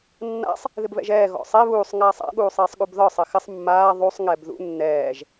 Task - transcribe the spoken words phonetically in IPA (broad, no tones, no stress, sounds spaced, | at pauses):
nː a̰ sˤ | ð ɪ b β ɛ̰ ʒ ɛː ɣ ɔ̰ sˤ e β uː sˤ ŋ aː sˤ a̰ ɠ uː sˤ eː sˤ ɠ u b ð ɒ sˤ ɪ x ɪ sˤ mː aː ðˤ u sˤ ŋ ɛ b ð ṵ nː ɛː ʒ